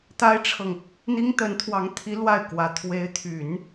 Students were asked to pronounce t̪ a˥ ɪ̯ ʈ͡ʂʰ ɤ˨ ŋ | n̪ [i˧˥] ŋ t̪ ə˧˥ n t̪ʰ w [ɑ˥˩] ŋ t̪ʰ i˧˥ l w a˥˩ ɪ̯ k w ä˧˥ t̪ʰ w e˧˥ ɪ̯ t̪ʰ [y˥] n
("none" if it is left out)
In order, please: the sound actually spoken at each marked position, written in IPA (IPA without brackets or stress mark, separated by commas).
i˥, ɑ˧˥, y˨˩˦